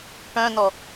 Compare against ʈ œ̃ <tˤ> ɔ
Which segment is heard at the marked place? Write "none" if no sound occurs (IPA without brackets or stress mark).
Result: n